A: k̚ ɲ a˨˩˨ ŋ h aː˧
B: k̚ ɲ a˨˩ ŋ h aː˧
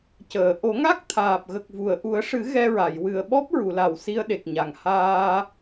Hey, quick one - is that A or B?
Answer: B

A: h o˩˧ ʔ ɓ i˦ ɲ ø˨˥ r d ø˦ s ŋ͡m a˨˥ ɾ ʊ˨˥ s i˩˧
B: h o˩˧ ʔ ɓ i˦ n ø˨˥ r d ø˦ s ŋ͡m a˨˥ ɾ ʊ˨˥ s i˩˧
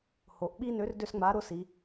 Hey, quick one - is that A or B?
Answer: B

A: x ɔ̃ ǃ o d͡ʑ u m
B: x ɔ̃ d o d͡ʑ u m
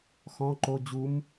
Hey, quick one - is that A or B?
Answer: A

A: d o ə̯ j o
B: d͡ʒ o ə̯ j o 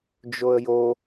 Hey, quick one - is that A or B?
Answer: B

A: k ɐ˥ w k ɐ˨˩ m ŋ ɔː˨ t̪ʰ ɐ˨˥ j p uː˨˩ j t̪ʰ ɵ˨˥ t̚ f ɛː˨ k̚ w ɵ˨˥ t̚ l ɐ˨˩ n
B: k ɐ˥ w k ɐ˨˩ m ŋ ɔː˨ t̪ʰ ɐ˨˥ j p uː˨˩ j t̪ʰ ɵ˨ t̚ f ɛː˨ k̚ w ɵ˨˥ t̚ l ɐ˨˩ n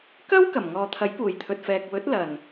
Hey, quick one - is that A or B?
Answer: B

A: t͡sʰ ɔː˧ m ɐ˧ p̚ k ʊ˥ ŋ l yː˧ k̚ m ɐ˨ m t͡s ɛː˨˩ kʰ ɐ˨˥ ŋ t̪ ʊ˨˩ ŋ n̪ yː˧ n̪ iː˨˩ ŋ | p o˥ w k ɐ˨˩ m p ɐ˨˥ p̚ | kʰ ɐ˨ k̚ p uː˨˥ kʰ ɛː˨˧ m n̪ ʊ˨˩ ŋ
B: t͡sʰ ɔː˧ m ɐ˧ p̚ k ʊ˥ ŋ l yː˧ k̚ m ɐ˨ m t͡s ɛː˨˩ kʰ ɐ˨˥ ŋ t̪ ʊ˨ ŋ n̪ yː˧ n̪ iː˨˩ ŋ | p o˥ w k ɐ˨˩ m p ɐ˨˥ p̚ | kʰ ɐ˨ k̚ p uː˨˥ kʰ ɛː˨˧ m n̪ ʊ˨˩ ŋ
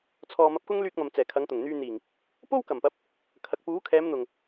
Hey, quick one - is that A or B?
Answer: A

